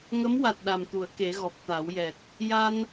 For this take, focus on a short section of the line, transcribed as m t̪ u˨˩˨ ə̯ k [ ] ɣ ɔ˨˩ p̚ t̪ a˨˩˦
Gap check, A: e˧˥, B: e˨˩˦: B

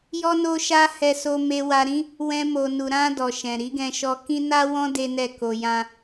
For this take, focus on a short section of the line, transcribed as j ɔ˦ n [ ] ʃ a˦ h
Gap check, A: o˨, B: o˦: B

